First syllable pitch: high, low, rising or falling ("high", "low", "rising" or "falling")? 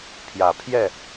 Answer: low